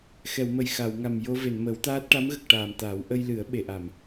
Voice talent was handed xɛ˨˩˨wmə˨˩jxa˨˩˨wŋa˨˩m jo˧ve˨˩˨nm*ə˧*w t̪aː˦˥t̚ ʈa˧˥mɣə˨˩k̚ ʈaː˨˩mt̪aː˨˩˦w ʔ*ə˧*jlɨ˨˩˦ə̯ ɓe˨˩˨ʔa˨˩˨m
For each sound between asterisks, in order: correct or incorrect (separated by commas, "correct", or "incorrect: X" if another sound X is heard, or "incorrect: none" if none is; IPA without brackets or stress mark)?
incorrect: ə˨˩˦, correct